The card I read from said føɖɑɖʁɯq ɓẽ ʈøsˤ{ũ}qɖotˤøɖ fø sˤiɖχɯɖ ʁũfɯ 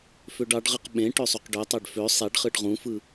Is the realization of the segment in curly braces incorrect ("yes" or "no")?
yes